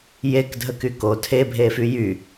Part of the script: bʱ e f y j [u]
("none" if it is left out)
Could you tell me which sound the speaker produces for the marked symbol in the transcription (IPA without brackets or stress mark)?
y